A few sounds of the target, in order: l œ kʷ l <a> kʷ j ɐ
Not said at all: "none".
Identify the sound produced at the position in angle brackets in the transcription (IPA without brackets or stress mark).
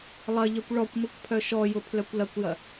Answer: ɐ